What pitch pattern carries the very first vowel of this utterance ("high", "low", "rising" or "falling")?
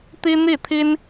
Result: high